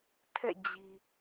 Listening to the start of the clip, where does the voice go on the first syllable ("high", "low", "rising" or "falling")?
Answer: falling